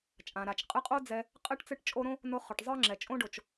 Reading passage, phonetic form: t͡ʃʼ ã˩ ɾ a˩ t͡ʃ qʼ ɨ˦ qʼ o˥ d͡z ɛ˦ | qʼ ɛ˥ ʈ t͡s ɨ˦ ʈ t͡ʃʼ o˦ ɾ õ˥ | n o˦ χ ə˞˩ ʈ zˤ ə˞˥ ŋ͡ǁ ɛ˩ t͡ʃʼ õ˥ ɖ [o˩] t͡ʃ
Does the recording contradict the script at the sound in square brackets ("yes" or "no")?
no